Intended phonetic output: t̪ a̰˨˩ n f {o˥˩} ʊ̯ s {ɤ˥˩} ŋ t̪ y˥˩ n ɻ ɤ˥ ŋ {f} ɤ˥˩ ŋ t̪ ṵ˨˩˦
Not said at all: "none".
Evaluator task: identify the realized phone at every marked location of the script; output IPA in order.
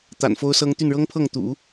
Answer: o˥, ɤ˥, pʰ

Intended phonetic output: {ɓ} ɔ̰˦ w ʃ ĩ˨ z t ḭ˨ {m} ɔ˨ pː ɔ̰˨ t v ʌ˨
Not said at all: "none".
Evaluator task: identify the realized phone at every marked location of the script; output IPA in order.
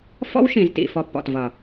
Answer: f, f

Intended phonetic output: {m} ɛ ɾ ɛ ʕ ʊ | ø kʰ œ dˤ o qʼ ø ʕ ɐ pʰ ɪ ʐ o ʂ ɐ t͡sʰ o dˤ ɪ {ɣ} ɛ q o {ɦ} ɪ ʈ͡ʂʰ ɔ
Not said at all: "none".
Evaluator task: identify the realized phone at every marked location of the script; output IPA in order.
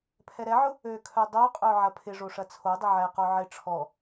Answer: pʰ, ʕ, ʕ

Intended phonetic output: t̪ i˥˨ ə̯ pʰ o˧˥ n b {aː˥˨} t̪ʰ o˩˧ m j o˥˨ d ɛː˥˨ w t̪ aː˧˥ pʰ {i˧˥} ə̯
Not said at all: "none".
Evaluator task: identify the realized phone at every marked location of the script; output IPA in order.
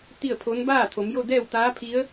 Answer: aː˥˨, i˧˥

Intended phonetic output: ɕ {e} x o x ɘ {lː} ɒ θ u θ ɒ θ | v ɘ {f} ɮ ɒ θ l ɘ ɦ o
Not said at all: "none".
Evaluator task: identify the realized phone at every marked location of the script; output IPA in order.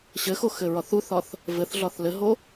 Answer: ɘ, ɹ, θ

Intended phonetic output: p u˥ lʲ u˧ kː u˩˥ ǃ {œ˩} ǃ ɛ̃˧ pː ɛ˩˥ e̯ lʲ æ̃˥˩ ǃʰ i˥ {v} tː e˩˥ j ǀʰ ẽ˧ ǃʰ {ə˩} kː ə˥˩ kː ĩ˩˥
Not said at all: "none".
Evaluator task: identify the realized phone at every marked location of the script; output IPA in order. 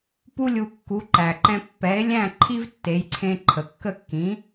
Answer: æ˩, v, ə˩

